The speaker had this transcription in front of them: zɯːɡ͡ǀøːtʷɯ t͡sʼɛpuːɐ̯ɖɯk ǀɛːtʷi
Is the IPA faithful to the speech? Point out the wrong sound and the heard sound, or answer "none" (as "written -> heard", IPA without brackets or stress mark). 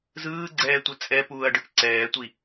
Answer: øː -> ɛː